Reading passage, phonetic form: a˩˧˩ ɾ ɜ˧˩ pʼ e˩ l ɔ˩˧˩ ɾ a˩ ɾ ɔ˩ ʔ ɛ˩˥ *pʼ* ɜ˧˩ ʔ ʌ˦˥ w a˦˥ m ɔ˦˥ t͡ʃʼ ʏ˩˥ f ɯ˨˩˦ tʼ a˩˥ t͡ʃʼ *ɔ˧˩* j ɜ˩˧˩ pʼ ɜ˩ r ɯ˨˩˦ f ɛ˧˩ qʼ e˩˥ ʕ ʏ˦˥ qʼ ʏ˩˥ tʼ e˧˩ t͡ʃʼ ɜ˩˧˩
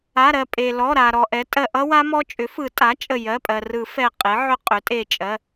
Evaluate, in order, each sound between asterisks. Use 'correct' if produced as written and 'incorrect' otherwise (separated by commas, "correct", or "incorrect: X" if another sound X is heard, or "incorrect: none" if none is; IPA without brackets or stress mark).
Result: incorrect: tʼ, incorrect: ə˧˩